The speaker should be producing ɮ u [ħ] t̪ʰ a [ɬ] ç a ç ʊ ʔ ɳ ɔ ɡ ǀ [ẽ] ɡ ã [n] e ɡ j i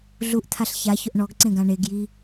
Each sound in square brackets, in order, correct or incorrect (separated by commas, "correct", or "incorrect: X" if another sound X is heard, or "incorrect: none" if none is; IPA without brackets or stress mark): incorrect: ʔ, correct, correct, incorrect: ɳ